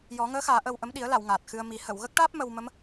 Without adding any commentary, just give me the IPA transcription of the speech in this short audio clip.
jɔ˨˩˦ŋəː˧˥xaː˨˩˦ ʔə˧wʔə˧˥m ɗi˨˩˦ə̯la˨˩˨w ŋaː˨˩t̚xɨ˧ə̯mi˨˩˦ hə˨˩˨wɣə˦˥k̚ʈaː˦˥p̚ mə˧wmə˧˥m

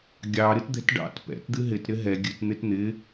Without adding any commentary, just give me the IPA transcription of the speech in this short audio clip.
ɡʲɑ ɾɨtd̪ɛ̤tɖɑ̰t pɛ̰t d̪ɨɦɪt ɾɪɦɛ ɡʲɨt n̪ɪtn̪ɪ

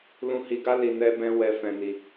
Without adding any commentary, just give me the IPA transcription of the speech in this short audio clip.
lũ˧hi˧ɡa˦ li˧nɛ˦bɛ̃˦ wɛ˧fɛ̃˧ni˧

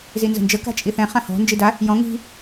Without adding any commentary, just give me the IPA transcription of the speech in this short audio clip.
zinzə̤nd͡ʒə ka̤t͡ʃʼiθɛ̃ χãhɔ̤ nd͡ʒida | jɔ̃ ŋi̤

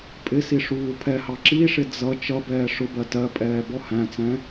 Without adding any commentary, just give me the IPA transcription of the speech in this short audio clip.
pʼɪsi ʂuːpʰɛhɑ ǁiʂɪ d͡zʌ t͡ʃʌ bɛːʂʊbɜ tɜpʼɛː bɔhæ̃t͡sɛ̃

